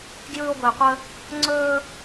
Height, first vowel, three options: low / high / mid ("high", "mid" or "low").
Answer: high